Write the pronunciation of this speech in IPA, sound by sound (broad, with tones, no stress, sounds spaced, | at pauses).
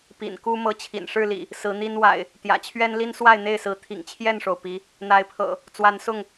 p ḭ˨˩ n k u˦ m ɤ˨˦ t͡ɕʰ ḭ˨˩ n ʂ ɻ̩˥˨ l ḭ˨˩ | s ɹ̩˨˦ n̪ i˦ n w a̰˨˩ ɪ̯ | t̪ j ä̰˨˩ t͡ɕʰ ɥ ɛ˦ n l i˦ n s w a˥˨ ɪ̯ n̪ e˥˨ ɪ̯ s ɹ̩˨˦ t̪ʰ ḭ˨˩ ŋ t͡ɕʰ j ɛ˥˨ n ʂ o˩ ʊ̯ p i˨˦ | n̪ a˨˦ ɪ̯ pʰ ɤ̰˨˩ | t͡s w a˨˦ n s ʊ˥˨ ŋ